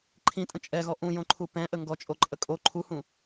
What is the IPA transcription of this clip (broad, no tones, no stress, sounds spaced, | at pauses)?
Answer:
ǃʰ ĩ tʼ ə̃ t͡ʃʼ ɛ ɣ ɔ ʔ ũ j õ ǃʰ u p ɛ̃ ʔ ə ŋ ɡ ɔ t͡ʃʼ o ǃʼ ə kʼ o ǃʰ u h ũ